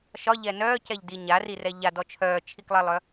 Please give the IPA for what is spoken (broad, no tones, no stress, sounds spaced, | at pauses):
ʃ ɒ ʎ ɛ n œː c ɛ ʎ d i ɲ a r i r ɛ ʎ a d ɔ t͡ʃʰ œː t͡ʃʰ i k lˠ ɛ lˠ œ